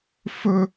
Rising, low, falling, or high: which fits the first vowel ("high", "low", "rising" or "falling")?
high